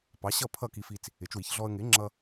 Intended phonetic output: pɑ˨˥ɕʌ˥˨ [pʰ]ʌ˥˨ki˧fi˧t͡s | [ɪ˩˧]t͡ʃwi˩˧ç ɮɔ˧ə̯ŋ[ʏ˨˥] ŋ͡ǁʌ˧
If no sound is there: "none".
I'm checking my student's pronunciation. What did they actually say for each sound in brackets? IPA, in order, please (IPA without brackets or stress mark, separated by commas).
pʰ, ɪ˩˧, ɪ˨˥